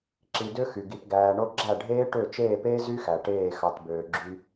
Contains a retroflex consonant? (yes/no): yes